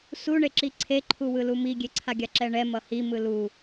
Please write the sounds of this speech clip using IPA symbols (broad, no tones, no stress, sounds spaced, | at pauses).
s u ɳ e ǁ i ǀʰ e ǃʰ u w ɯ l u m i ɡʲ e ǀʰ a ɡʲ a ǁ ɛ ɳ ɛ m ʌ h i m ɯ l u